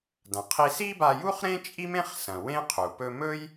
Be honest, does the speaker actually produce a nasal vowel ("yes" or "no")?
yes